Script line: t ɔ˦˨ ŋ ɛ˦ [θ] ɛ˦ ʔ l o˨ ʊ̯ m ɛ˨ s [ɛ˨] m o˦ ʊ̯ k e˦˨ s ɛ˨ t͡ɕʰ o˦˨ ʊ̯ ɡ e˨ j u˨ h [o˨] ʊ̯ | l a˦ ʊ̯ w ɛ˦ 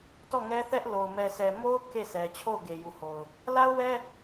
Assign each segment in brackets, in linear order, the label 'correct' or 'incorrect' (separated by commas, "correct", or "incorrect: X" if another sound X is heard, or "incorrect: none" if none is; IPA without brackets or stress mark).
correct, correct, correct